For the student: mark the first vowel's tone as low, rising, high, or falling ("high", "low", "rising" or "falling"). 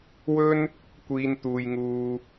high